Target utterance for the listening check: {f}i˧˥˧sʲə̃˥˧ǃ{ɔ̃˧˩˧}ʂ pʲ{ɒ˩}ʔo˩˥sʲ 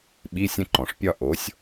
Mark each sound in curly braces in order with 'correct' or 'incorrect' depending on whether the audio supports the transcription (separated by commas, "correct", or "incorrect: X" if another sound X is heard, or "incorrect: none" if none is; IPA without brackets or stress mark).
incorrect: ɓ, incorrect: ɔ̃˩, incorrect: ɒ˥˧